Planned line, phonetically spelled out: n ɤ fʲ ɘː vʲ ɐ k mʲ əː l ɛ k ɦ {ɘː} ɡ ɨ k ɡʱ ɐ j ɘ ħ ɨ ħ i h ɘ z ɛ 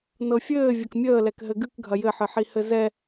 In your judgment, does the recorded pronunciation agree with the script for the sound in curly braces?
no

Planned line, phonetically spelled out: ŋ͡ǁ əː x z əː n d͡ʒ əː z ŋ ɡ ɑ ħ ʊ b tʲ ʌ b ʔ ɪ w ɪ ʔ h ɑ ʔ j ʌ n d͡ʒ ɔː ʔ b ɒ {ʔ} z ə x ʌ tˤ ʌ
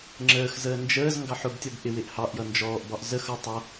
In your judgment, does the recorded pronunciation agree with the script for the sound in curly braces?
yes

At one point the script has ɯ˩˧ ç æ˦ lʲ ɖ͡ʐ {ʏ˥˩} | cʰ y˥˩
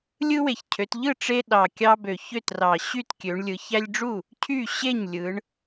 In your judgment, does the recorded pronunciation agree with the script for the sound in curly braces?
no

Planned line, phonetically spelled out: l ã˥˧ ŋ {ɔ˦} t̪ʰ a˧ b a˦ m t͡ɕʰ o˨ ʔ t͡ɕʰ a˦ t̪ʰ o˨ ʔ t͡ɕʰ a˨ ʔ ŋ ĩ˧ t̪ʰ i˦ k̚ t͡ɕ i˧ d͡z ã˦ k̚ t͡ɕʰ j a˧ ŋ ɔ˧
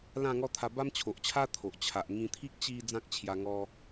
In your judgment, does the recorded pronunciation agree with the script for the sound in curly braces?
yes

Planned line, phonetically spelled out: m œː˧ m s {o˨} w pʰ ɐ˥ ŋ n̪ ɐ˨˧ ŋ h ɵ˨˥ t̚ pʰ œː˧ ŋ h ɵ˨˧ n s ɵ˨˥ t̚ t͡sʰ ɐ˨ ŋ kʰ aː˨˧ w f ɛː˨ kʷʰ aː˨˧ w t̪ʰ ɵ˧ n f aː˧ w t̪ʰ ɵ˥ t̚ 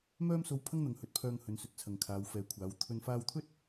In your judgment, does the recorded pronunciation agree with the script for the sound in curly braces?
no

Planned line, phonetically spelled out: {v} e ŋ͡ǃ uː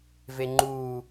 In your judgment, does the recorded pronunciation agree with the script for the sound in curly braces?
yes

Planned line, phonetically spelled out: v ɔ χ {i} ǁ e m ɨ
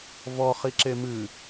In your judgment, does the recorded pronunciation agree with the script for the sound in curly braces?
yes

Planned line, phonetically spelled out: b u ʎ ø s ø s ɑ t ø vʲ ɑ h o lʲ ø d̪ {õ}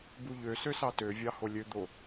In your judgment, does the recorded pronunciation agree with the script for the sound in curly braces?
no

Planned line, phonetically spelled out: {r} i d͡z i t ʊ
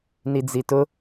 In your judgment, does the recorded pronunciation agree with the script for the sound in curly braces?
no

